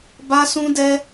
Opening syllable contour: high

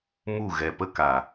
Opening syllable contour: falling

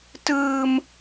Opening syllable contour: high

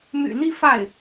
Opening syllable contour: low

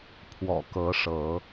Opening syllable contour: low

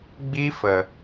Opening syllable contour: high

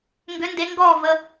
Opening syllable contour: rising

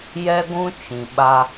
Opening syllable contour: high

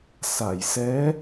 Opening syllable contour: low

